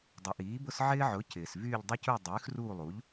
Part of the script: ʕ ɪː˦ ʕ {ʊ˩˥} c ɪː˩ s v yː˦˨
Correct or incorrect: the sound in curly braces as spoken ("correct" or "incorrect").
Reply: correct